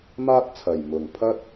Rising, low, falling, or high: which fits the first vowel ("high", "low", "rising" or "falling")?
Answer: high